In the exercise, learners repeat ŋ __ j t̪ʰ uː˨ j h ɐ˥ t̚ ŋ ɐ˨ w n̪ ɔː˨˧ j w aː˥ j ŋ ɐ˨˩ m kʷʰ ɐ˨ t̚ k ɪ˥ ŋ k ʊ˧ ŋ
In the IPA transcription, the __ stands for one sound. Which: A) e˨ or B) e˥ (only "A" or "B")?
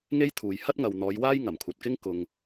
B